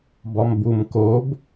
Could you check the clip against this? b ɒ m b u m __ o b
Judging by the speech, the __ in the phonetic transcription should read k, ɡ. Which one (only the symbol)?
k